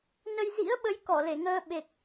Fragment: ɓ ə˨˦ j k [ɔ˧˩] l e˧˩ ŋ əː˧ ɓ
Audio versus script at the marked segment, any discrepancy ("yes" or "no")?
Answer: no